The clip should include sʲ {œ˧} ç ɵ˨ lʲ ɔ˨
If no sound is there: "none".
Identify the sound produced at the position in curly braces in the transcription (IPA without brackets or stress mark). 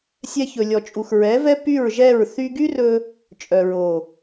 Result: ɛ˧